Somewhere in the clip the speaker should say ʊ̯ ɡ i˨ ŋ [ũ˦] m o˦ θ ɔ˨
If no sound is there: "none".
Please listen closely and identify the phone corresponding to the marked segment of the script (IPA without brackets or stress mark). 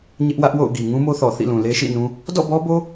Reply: ũ˦